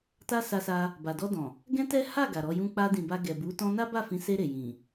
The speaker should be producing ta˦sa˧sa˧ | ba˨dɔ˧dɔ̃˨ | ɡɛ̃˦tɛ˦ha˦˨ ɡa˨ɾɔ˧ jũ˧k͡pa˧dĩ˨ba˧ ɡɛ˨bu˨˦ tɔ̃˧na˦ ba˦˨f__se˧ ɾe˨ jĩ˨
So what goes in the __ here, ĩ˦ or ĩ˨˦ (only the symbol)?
ĩ˨˦